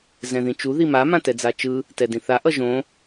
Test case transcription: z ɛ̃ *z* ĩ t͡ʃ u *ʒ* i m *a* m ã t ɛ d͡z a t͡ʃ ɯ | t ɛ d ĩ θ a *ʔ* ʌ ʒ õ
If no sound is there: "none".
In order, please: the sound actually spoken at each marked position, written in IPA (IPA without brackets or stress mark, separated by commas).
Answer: ð, ð, a, ʔ